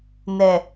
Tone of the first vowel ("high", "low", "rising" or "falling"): low